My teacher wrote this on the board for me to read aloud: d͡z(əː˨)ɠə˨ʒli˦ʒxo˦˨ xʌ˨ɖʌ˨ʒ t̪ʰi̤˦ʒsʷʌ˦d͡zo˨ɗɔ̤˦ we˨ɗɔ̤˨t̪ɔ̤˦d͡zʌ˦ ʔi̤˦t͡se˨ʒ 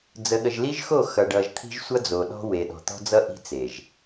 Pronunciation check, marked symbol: incorrect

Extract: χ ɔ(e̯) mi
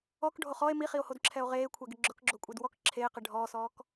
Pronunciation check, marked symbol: correct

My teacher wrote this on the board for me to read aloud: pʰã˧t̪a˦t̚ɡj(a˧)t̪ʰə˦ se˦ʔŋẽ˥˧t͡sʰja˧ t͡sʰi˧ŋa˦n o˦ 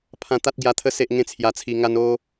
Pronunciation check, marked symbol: correct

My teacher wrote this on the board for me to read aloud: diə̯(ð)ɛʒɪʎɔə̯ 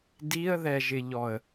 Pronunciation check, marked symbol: correct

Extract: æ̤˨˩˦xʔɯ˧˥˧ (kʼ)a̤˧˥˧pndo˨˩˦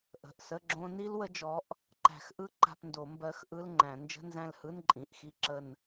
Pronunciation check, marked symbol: incorrect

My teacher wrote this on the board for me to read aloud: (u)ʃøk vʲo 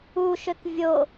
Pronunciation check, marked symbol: correct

